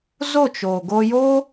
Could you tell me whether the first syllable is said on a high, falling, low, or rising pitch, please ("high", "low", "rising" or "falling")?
falling